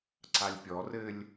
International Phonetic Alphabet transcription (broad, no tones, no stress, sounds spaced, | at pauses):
ǀ a lʲ pʲ ɔ r ɘ lʲ